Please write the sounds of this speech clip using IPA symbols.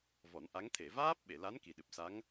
v ɔ˨˩˦ n ʔ a˧˥ ŋ t̪ʰ e˨˩˨ v aː˦˥ p̚ ɓ e˨˩˨ l a˧˥ n k i˨˩ ɗ ɨ˨˩ p̚ s a˧˥ ŋ

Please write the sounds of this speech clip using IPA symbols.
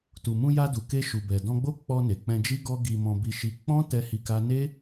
t u˨ m ũ˧ j a˧ d u˨ k e˧ ʃ u˨ b ɛ˨ d ɔ̃˧ ɡ͡b o˦ k͡p ɔ˧ n e˨ k͡p ɛ̃˧ d͡ʒ i˦ ɡ ɔ˦ ɡ i˧ m ɔ̃˧ b i˧ ʃ i˧ k͡p ɔ̃˦ t ɛ˦ h i˧ k a˦ n e˦

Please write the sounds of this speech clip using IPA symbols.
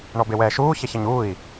ɳ ɔ b e w ɛː ʃ uː ç ɛ ç ɐ ɲ uː i̯

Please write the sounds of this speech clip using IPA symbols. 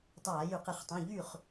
tˤ aː˧˩˧ j y˧˩˧ q e˧˩˧ χ tˤ ũ˩˧˩ ʎ y˥˩ χ

